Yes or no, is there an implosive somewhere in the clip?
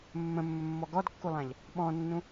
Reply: yes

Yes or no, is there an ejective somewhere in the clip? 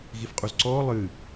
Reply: yes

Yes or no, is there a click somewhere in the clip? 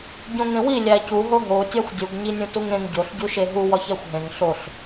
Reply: no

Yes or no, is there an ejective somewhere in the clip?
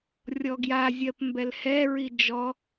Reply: no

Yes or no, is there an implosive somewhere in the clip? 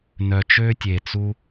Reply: no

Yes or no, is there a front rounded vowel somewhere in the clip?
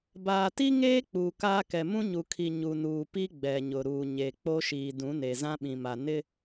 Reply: no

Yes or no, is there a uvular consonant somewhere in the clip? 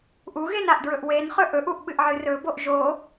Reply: yes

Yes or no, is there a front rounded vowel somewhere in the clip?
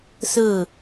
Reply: no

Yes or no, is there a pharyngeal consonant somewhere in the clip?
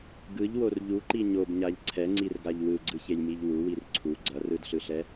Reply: no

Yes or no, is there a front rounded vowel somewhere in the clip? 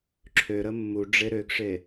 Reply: yes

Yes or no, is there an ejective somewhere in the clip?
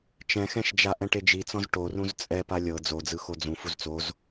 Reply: yes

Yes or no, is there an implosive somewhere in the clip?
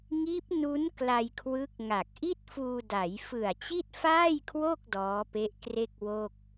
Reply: no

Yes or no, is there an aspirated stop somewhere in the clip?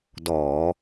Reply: no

